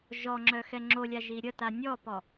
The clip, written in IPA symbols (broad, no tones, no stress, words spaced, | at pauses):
ʒɔŋ͡ǁœ xɛŋ͡ǁolʲa ʒiɾʲəta nʲɔpɔ